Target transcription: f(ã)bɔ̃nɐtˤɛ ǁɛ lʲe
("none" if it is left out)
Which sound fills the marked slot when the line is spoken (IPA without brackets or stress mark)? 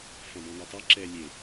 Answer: ɐ̃